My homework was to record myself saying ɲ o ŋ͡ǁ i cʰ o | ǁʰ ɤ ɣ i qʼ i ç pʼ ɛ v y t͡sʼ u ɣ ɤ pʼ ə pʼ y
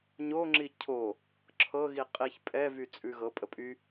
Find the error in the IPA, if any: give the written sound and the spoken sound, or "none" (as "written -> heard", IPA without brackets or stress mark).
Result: u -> ʉ